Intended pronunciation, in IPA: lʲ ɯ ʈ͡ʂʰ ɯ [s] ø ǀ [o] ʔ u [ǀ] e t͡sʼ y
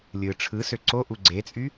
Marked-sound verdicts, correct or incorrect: correct, correct, incorrect

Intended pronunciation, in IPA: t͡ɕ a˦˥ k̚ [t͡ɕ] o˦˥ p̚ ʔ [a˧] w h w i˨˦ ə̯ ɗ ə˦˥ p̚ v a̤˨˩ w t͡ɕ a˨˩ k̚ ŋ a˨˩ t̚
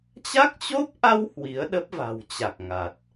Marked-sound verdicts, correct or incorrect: correct, correct

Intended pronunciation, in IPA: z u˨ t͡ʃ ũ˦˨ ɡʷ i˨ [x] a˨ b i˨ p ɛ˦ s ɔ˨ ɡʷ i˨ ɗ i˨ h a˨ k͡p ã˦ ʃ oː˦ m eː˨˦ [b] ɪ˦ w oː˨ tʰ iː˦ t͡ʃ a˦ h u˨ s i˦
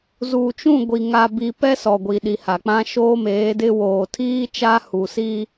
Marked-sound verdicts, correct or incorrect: incorrect, incorrect

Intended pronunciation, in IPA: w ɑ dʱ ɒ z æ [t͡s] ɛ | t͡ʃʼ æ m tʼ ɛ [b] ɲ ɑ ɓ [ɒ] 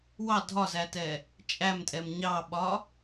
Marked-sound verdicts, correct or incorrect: incorrect, incorrect, correct

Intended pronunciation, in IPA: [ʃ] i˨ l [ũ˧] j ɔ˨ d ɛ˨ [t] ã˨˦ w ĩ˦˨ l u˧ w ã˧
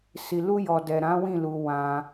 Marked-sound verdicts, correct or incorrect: incorrect, incorrect, incorrect

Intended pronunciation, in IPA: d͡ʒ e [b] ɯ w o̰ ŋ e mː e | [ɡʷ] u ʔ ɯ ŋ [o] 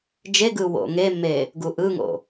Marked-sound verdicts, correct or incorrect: incorrect, incorrect, incorrect

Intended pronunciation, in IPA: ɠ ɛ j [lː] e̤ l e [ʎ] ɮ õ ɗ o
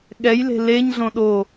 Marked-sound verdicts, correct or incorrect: incorrect, incorrect

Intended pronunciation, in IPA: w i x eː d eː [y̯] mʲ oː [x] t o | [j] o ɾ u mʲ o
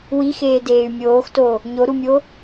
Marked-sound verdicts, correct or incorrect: correct, correct, incorrect

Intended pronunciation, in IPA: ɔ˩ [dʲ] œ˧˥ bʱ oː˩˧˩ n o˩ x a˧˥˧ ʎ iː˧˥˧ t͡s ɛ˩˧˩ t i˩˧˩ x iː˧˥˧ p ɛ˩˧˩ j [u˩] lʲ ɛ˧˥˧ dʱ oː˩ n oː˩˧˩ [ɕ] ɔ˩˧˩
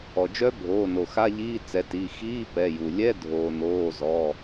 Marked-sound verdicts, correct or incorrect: incorrect, correct, incorrect

